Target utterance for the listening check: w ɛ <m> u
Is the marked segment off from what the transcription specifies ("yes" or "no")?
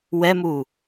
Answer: no